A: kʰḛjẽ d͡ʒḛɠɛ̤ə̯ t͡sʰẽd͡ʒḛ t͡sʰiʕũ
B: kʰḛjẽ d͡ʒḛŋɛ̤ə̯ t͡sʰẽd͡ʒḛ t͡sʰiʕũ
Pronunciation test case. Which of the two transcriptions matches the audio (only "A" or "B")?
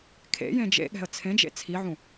A